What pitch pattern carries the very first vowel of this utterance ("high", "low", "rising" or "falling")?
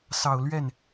low